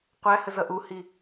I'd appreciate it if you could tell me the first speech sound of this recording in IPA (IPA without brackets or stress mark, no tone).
qʷ